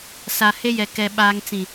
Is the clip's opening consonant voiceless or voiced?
voiceless